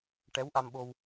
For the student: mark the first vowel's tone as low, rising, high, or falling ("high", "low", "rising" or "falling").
rising